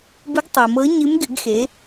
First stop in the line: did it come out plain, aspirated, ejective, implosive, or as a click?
plain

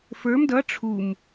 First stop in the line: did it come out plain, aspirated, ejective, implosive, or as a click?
plain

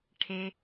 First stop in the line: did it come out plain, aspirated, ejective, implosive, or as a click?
aspirated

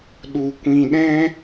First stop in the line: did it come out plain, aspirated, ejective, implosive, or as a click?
implosive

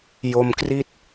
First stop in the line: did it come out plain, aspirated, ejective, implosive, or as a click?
plain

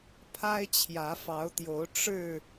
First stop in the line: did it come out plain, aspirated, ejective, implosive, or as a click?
aspirated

